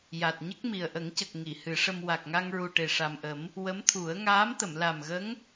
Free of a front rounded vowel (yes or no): yes